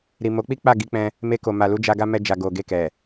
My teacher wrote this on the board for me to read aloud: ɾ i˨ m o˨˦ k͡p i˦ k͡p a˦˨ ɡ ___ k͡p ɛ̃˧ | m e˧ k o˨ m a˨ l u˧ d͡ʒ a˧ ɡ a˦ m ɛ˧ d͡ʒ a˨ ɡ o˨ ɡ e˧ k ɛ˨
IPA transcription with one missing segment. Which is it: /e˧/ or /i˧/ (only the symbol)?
i˧